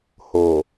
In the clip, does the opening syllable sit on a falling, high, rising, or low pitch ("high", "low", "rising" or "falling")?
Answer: low